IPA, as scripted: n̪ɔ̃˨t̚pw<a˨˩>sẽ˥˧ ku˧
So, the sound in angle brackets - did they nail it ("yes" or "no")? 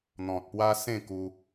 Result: no